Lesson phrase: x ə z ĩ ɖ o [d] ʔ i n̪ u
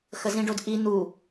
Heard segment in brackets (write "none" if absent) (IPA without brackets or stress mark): d